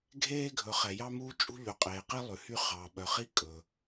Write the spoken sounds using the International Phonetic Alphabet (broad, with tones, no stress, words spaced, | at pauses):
ɡʱeː˦ ɡʱɵ˨χɛ˨ jɑ˦muː˦ t͡ʃʼṳ˦ʎʉ˨qʼeː˨ qi˦ lˠʉ˨hy˦χɑː˨ ɓœ˨χi˦ kʼɵ˨